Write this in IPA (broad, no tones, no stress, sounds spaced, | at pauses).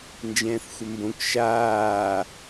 n d͡ʒ ɛ̃ː θ xʷ ə m b õ k ʃ aː